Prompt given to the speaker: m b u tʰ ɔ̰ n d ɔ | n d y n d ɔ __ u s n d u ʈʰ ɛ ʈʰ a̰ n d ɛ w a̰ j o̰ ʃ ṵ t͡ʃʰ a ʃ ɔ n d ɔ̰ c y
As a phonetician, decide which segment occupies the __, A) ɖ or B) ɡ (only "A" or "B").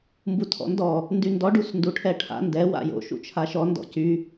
A